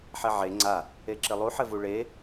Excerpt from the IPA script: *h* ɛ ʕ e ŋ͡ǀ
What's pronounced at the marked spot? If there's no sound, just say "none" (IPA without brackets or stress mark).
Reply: ħ